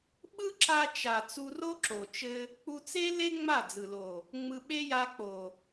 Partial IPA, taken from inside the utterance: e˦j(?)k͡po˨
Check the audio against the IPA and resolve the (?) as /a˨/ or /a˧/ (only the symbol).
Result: a˧